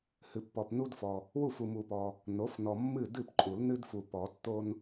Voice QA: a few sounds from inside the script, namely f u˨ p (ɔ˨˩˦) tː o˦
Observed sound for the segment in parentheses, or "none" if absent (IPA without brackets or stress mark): ɔ˨˩˦